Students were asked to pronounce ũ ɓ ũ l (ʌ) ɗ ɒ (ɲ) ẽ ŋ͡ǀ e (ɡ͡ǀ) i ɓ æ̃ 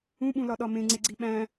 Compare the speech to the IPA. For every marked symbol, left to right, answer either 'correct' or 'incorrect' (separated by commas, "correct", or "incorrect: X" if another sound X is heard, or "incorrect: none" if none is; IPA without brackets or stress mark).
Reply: incorrect: ɒ, incorrect: m, correct